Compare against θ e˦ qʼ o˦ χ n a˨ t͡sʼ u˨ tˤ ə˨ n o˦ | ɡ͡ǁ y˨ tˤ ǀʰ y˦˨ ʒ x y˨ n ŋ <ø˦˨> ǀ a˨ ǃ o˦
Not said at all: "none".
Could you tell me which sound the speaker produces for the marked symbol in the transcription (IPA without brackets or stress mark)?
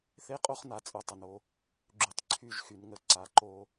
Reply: ə˦˨